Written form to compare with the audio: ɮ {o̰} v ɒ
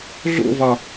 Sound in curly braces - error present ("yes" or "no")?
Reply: no